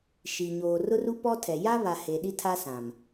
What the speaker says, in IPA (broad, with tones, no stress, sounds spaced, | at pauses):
ʃ i˨ ɲ oː˨ r ʊ˦ r u˦ p ɔ˦ tʰ ɛ˨ j a˦ β a˨ h e˨ ɗ i˦ tʰ a˦ s ã˨ m